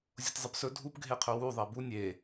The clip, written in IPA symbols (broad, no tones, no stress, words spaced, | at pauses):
zʲotʲzˤɨpsɵ dʱupɡʱeqʰɵ wu ðˤibu nʲe